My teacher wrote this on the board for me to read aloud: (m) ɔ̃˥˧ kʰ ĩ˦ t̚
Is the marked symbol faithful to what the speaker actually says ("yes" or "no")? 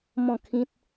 yes